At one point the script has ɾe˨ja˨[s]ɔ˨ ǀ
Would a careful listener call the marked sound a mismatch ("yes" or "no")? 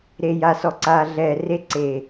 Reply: no